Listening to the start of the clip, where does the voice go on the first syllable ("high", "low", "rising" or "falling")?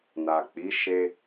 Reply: low